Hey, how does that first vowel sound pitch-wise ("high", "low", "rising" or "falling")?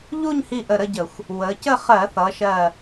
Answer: falling